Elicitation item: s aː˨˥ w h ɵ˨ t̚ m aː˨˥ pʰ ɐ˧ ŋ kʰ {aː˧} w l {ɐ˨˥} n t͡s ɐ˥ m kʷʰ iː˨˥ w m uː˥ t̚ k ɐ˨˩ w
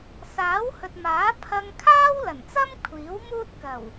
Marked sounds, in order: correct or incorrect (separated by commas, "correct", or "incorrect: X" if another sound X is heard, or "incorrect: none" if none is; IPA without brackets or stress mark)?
incorrect: aː˥, incorrect: ɐ˨˩